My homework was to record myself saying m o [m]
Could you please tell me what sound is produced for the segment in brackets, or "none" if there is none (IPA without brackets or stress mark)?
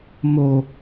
none